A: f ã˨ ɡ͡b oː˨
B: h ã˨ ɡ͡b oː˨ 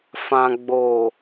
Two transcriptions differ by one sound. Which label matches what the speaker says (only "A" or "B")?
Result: A